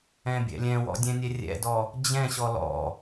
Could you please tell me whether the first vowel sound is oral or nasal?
nasal